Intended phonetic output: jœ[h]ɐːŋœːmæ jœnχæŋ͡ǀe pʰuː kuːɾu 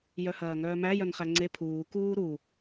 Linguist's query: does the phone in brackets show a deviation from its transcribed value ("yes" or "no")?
no